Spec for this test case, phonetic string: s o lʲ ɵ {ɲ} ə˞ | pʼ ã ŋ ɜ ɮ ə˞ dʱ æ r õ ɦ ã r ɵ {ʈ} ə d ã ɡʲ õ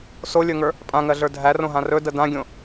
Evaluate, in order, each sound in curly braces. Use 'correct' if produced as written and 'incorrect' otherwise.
incorrect: ŋ, incorrect: d

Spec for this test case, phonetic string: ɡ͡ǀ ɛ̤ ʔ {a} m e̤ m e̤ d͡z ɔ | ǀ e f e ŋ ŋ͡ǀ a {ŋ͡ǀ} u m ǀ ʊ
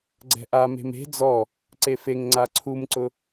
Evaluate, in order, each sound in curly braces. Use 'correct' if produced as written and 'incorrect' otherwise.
correct, incorrect: ǀʰ

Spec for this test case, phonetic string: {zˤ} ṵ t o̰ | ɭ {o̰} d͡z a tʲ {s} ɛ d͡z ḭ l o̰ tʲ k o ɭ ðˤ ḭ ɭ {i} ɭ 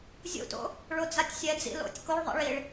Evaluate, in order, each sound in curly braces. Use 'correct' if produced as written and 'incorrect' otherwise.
incorrect: zʲ, incorrect: o, incorrect: sʲ, correct

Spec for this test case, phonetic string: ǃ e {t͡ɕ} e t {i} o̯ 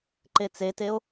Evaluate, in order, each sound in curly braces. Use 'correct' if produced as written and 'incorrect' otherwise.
incorrect: t͡s, incorrect: e

